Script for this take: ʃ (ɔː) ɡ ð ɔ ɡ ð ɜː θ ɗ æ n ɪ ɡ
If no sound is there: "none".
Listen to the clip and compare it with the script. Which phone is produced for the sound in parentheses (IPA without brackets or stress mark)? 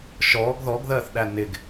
ɔː